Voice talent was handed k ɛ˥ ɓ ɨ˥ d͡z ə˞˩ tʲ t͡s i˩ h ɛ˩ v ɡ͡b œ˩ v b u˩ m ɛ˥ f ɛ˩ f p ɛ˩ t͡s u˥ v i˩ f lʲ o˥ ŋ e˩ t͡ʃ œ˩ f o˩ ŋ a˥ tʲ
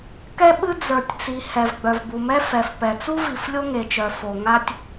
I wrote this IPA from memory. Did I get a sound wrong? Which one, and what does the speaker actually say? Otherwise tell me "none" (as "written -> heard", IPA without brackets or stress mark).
none